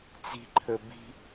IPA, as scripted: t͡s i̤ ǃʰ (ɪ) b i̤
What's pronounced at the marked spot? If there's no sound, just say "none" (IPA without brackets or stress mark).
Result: ə